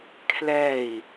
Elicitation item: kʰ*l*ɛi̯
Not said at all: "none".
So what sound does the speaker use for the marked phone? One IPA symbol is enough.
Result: l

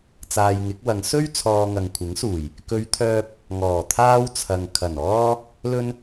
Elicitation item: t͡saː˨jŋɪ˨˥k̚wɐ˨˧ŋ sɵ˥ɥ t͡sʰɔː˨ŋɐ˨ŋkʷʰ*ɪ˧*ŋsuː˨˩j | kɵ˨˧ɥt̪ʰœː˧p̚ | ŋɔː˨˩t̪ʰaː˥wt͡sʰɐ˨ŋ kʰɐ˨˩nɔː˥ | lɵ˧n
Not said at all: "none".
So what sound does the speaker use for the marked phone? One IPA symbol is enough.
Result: ɪ˨˥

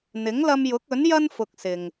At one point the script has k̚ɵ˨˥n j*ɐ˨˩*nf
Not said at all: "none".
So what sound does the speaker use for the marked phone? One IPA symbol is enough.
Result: ɐ˥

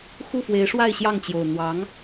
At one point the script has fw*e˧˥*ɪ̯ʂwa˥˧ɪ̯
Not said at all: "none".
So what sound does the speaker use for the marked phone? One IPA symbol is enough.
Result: e˧˥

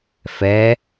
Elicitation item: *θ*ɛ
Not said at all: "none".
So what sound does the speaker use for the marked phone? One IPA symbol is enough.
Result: f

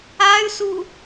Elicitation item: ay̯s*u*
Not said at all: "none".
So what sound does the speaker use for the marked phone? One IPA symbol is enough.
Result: u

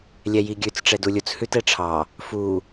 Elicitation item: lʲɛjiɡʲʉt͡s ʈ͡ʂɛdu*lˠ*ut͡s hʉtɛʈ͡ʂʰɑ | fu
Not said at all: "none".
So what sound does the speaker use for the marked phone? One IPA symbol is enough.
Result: lʲ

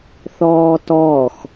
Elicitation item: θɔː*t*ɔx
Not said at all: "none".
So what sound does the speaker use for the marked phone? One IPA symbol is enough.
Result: t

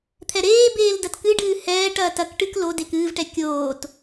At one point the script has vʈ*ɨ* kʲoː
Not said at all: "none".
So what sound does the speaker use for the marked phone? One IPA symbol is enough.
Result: ɛ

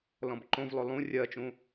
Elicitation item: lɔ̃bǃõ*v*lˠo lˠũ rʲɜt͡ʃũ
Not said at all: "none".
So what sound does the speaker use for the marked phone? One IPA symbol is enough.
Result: v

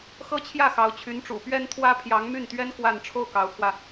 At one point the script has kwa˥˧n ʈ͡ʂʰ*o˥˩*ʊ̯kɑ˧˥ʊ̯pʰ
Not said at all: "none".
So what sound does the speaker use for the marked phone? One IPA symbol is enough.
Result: o˥˩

